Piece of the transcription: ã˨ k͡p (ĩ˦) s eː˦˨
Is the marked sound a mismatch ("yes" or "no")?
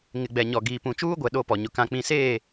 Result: yes